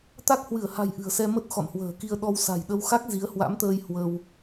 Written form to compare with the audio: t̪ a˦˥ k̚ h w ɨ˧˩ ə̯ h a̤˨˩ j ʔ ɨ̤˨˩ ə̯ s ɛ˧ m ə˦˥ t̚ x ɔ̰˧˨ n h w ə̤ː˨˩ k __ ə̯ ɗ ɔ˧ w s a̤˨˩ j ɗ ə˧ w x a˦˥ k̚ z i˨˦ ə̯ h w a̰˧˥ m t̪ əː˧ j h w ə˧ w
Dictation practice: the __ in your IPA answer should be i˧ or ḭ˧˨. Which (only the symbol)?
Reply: i˧